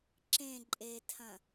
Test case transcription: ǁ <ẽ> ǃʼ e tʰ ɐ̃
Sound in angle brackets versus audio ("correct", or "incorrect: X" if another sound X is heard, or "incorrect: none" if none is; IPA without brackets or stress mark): correct